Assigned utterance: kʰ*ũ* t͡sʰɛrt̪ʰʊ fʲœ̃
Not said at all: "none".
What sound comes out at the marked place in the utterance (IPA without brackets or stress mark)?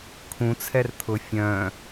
ũ